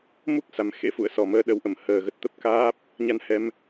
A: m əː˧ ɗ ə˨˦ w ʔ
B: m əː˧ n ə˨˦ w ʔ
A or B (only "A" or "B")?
A